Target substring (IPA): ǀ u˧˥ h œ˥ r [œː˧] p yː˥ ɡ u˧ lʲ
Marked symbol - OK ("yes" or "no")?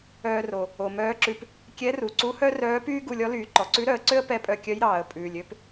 no